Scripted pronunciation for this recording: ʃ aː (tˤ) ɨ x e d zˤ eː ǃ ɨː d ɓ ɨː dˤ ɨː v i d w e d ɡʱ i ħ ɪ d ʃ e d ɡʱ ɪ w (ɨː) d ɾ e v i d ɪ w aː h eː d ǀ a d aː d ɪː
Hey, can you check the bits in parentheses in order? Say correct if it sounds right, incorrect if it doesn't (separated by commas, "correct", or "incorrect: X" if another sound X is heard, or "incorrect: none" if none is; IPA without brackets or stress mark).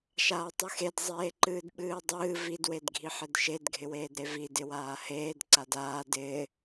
correct, incorrect: eː